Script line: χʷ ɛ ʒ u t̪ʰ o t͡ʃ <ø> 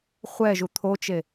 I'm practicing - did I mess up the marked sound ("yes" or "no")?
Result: yes